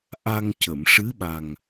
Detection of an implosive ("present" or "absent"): present